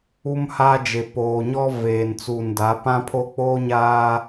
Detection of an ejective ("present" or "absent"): absent